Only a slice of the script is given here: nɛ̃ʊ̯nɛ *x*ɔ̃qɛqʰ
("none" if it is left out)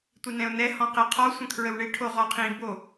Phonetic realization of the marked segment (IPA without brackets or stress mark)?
h